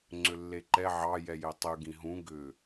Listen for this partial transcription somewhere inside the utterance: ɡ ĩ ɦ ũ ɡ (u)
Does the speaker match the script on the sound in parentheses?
no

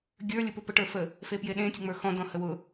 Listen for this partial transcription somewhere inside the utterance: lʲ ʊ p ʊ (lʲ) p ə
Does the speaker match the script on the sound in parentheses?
no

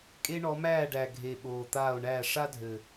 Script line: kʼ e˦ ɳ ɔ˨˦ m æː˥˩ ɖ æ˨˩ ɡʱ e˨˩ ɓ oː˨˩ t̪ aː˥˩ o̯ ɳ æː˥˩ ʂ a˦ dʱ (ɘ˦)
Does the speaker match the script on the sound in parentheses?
no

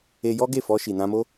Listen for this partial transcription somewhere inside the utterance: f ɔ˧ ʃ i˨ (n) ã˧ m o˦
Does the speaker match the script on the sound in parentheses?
yes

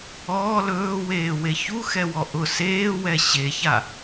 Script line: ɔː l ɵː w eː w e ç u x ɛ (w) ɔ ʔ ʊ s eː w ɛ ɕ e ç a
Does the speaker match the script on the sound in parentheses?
yes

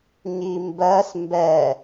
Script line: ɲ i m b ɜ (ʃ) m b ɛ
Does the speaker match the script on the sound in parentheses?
no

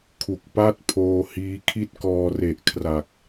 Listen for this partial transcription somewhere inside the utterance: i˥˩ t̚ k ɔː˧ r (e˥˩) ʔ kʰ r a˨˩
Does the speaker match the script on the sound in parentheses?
no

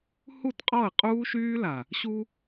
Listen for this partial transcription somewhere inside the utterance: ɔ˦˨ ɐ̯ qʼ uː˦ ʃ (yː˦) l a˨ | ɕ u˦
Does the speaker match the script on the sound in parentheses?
yes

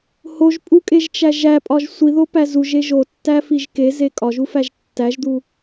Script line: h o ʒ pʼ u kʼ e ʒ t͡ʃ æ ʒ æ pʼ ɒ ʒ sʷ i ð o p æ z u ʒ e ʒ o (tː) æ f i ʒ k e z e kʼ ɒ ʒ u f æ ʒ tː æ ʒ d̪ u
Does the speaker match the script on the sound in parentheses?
yes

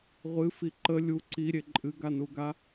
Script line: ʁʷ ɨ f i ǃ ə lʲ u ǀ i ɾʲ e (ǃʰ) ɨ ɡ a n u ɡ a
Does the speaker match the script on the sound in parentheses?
no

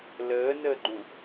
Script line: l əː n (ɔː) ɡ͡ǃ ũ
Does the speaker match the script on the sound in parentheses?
no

